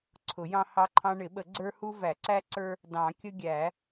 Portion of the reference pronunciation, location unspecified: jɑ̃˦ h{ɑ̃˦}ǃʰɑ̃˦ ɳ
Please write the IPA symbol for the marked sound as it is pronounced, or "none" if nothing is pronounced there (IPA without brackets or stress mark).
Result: ɑ˦